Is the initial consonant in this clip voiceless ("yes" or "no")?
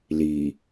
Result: no